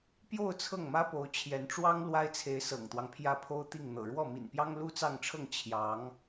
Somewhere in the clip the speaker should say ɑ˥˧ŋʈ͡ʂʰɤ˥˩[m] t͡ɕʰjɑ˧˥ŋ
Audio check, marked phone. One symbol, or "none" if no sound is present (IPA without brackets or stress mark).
ŋ